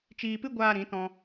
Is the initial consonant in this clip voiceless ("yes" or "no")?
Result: yes